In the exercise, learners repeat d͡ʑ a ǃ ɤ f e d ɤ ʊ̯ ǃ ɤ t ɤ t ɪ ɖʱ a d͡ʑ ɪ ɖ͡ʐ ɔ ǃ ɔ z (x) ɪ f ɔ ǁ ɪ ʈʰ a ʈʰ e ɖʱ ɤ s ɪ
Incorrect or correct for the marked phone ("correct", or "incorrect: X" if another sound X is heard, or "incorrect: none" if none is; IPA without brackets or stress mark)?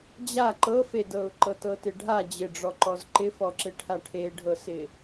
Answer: incorrect: ǃ